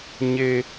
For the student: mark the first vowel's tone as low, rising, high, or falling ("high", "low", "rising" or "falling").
high